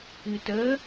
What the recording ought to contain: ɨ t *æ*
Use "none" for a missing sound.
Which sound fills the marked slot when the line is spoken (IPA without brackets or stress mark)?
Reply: ə